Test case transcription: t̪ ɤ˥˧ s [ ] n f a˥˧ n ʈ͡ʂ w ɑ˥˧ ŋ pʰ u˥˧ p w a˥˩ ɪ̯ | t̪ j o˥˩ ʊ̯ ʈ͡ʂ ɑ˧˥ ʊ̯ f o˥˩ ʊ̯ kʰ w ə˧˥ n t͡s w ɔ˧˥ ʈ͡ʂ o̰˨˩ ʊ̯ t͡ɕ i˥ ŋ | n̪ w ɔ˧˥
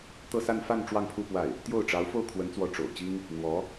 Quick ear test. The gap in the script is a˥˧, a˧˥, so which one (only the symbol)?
a˥˧